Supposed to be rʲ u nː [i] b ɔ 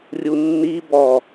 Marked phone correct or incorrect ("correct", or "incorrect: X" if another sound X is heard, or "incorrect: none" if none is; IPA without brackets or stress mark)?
correct